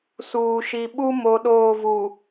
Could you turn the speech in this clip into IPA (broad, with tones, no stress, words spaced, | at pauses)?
suː˨ʃi˨ɓu˦ mo˨˦ɗoː˦˨vu˨